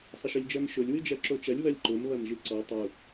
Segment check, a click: present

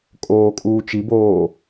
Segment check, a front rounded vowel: absent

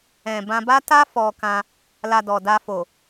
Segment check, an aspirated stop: absent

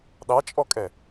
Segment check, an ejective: present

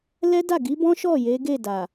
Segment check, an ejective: absent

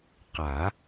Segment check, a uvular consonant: present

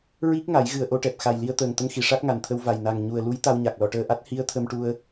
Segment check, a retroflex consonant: present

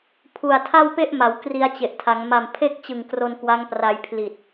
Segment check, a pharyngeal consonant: absent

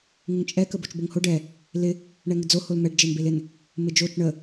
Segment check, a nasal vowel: absent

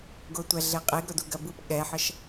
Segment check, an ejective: present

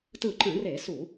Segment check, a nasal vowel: present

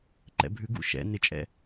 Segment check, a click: present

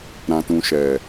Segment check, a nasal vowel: present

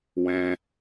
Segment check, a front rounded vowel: absent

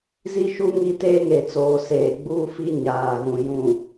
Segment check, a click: absent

